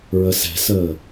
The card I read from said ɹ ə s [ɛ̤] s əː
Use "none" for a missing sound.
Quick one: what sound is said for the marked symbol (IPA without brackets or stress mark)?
ɛ̤